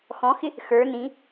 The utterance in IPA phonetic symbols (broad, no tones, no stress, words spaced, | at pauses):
xɔ̃xɪ | xə˞ nĩ